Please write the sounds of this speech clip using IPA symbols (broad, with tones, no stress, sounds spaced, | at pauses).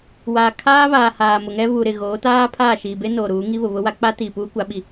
w aː˨ kʰ aː˦ β aː˨ h aː˨ m ʊ˨ ŋ ɛ˦ β u˨ ɾ ɪ˨ ɣ oː˨˦ t aː˦ pʰ aː˦˨ ʃ iː˨ b e˦ n oː˨ ɾ uː˨˦ ŋ i˦ β ʊ˨ β ʊ˦ w a˦ k͡p a˦ t iː˨ p uː˦ kʷ a˨˦ ɓ i˨